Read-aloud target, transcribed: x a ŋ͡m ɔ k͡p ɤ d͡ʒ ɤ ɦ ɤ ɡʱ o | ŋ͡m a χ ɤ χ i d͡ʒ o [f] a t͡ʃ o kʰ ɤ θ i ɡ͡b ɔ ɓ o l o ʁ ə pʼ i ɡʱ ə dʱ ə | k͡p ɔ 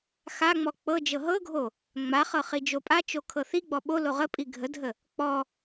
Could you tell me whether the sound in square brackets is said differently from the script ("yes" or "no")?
yes